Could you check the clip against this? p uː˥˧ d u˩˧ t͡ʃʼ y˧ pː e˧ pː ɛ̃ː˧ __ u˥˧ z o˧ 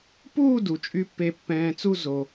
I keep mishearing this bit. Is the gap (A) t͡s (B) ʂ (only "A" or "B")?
A